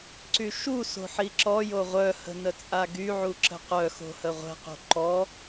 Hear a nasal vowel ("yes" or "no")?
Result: no